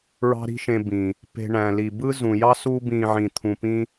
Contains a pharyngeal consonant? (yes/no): yes